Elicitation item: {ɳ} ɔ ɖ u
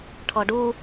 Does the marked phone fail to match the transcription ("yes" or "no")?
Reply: yes